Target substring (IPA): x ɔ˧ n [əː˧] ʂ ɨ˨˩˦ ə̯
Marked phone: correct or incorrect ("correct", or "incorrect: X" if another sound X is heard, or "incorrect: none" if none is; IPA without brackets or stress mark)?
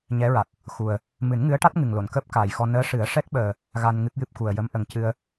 incorrect: əː˧˥